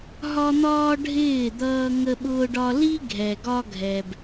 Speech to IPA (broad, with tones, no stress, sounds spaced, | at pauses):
ɦ ɒ˦ n̪ ɒː˦ ɖʱ ɪː˦˨ d̪ ʌː˦ ŋ ə˦ ɓ ʊː˦ ɖ ɒ˦ l i˦ ɡʱ ɛ˨ ɡ ɒ˦ ɡʱ ɛ˨ b